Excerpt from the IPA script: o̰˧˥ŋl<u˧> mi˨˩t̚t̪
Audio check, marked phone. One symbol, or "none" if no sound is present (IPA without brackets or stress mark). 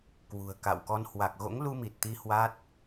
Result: u˧